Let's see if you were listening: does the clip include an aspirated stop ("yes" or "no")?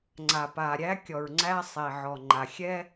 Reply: no